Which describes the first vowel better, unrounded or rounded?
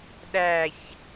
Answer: unrounded